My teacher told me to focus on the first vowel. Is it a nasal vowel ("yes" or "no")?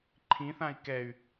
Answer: yes